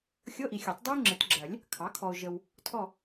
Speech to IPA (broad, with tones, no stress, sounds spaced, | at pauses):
xʲ ɤ˧˥˧ ʔ i˨ xʲ ɜ˨˩˦ tˤ dˤ ɜ˥ ʊ̯ ŋ͡ǁ ɘ˨˩˦ t ɡ͡ǁ ɜ˨˩˦ lʲ | kʰ ɑ˩˥ kʰ ɔ˨ ʊ̯ ʒ ə˨ w | tʰ ɔ˦˨